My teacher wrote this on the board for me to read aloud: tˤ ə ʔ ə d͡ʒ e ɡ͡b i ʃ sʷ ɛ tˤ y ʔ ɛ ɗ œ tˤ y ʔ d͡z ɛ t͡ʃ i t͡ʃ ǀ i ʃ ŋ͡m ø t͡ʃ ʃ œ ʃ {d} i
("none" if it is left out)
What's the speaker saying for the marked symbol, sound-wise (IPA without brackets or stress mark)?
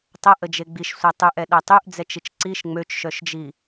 d͡ʒ